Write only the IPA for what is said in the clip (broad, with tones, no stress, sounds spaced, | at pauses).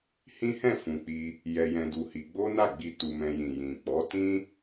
h ĩ˦ h ɛ̃˦˨ f ũ˨ k͡p i˧ | j ɛ˧ j ɛ̃˧ d u˧ h i˧ ɡ͡b o˦ n a˦˨ ɡ͡b i˧ t u˧ m ɛ̃˧ j ĩ˨ j ĩ˨ k͡p ɔ˨˦ t ĩ˦